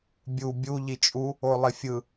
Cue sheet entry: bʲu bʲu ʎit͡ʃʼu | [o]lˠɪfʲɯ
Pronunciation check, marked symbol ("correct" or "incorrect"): correct